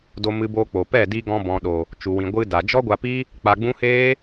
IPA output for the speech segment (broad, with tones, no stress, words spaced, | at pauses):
do˧mɨ˧boː˧ k͡po˨pɛ˦˨di˧ɡɔ̃˧ bɔ̃˨ɗo˨ | t͡ʃu˨wĩ˨ ɡʷɨ˧da˨ d͡ʒɔ˦ɡʷa˧pi˦ | k͡pa˧ɡ͡bũ˦ heː˦